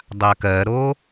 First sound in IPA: dˤ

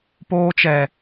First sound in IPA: p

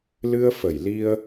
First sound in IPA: l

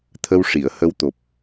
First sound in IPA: t̪ʰ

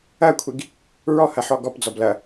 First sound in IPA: ɐ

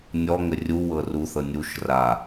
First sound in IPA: nʲ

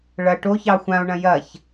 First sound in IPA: ɭ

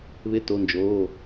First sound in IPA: β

